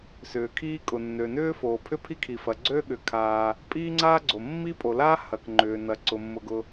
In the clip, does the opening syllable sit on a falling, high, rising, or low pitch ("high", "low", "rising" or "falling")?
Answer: low